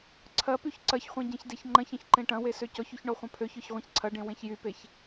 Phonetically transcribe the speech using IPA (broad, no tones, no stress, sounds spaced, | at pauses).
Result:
ǀʰ ɐ p y ç ǀ ɐ ç χʷ ẽ ɟ ẽ ç d e ç ŋ͡ǃ ɐ̃ ç ɐ̃ ç ǃ ẽ ʈ ɐ̃ w e s ø c ɔ ç y ç ɳ ɔ χʷ ɐ̃ pʰ ø ç œ ç ʁʷ ẽ ç ǀʰ ɐ ɖ ẽ w ẽ ç j y p e ç